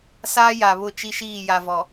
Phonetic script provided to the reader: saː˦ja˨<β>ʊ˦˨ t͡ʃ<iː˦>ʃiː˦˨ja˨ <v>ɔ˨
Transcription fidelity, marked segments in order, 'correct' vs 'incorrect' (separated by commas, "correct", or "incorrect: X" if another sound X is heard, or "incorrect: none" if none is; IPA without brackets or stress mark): correct, incorrect: i˦, correct